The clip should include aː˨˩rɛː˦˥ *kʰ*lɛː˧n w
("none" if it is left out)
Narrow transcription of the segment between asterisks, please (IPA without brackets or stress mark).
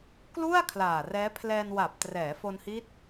pʰ